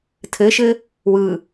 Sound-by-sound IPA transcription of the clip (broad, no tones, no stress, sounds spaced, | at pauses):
tʰ ɘ ʃ ɘ | w ɯ